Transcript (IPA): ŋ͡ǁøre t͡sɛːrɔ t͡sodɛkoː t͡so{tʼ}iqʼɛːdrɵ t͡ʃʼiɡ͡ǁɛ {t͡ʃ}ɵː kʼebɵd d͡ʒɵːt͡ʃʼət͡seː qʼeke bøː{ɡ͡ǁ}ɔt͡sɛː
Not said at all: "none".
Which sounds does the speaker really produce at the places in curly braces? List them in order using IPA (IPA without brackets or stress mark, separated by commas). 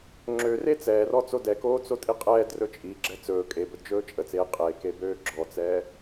tʼ, t͡s, ɡ͡ǁ